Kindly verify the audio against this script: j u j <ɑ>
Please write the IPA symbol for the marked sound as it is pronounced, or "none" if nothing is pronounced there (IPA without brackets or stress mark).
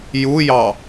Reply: ɑ